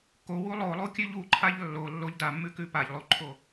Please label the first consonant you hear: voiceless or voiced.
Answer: voiceless